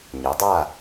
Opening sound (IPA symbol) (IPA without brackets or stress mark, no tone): ɲ